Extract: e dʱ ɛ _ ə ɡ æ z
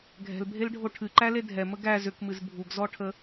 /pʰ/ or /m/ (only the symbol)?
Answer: m